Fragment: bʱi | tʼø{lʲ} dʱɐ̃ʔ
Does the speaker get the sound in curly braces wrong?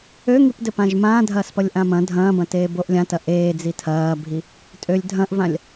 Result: no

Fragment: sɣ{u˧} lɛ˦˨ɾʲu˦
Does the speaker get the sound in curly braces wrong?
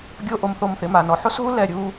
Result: yes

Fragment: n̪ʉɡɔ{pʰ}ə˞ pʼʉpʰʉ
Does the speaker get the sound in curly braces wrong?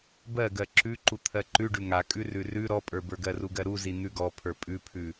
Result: no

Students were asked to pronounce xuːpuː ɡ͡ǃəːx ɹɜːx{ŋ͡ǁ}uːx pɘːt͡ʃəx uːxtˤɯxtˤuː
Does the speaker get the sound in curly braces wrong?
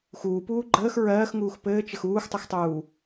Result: yes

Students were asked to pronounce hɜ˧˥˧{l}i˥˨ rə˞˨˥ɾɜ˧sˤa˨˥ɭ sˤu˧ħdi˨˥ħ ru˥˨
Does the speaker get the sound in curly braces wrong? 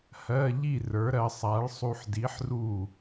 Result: yes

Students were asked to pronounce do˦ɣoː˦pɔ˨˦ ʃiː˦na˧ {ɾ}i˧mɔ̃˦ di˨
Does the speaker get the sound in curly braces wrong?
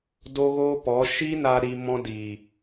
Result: no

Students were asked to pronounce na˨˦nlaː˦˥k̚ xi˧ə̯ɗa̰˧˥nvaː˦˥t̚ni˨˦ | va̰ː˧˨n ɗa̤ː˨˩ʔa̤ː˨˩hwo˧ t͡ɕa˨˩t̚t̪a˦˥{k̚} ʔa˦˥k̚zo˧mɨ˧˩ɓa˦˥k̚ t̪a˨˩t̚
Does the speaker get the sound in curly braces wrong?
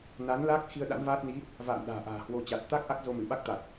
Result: no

